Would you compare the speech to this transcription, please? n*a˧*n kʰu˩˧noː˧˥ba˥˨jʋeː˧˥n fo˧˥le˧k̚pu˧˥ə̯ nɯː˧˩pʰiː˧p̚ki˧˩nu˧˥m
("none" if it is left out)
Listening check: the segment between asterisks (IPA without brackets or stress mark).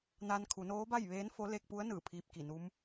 a˧